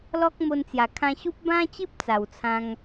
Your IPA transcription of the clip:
l ɔ˦ k̚ m o˧ n t͡s j a˨˩ kʰ ã˧ ɕ u˦ p̚ b ã˦ t͡ɕ i˦ p̚ t͡s a˨˩ w t͡sʰ ã˧ ŋ

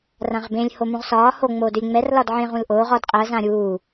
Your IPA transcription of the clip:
r ã ʁ b ẽ lʲ h o m ũ ʁ s ɒː h o ŋ͡m oː d ʏ lʲ ŋ͡m ɛ r l ɒ d ʕ ẽ ʁ ũ l ʔ oː ʁ ɒ d qʼ ɜ z ã ɾʲ uː

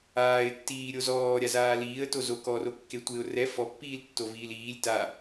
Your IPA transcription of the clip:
aː ɪ̯ tː iː ɾʲ o z ɔː ɾʲ a z aː l iː ə̯ t o z o k ɔ r o kː e tʷ e ʊ̯ r ɛ f ɔ pː iː l tː o v iː l iː lʲ t a

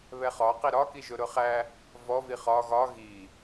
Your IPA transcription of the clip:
β ɛ χ ɒ q i ɾ ɒ k i ʒ ʊ ɾ ʊ χ æ | v ɔ v i χ ɒ ɣ ɒ ɣ i

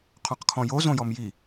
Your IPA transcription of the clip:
qʰ ɔ̃ q kʰ ɔ̃ j o z õ j ɔ m j i

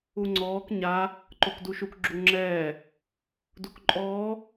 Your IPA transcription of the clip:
u ŋ͡ǀ ɔː k ɲ a | ǃ o k d u ʃ u k ɡ͡ǁ u ŋ͡ǁ ɛː | d u k ǃʼ ɔː

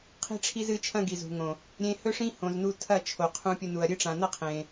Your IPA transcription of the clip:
qʰ i̤˧ ʈ͡ʂʰ i˧ z ɨ˨˦ t͡ʃʰ ɐ̃˧ ɡ i˨ z ṳ˨ ŋ õ˨ | ɾʲ ẽ˧ h ɵ˦ ʂ ĩ˦ h õ˨ z n u˧ tʰ ɐ˦˨ t͡ʃʰ o˨ qʰ ũ˧ pʲ ɵ˧ n u˨ ɐ̯ ɾʲ ɨ˦ ʈ͡ʂ ã˨ n ɐ˦ qʰ ẽ˨

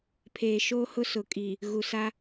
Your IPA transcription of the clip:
pʰ eː˨ ʃ oː˦ h ʊ˦ s ʊ˨ kʼ i˨ | ɣ u˨ s a˦

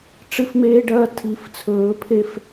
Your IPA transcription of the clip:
ʈ͡ʂ ɨ˦ f m eː˦ ɖ ɐː˦ tʰ i˨˦ f t͡sʰ ɵː˨˦ pʰ e˦ f

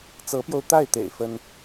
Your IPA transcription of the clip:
t͡s ɤ˧˥ p j o˧ ʊ̯ t̪ a˥˩ ɪ̯ t̪ ḛ˨˩ ɪ̯ f ə˥ n

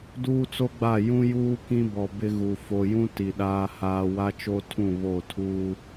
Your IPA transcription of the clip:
d uː˦ t͡s o˦ ɡ͡b a˦˨ j ũ˦ j uː˦ k ĩ˦ b ɔ˨ b ɪ˦ ɣ u˨ f o˨ j ũ˦ t i˨ ɗ aː˦ h aː˦ w a˦ t͡ʃ o˦ tʰ ũ˦˨ β o˦˨ tʰ uː˦

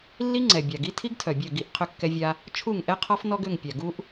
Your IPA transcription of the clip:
lː i˦ ŋ͡ǀ ɛ˨ bʲ a˨ ɡ i˦ tʰ i˦ ɡ tʰ œ˨ bʲ œ˦˨ ɡ i˦˨ ʔ qʰ ʏ˦ kː ɛ˦ vʲ a˦ | t͡ʃʰ u˦˨ ŋ ʔ ɛ˦ qʰ ɔ˦ f n ɔ˦ ɡ ʏ˦˨ ŋ pʲ a˨ ɡ u˦ ʔ

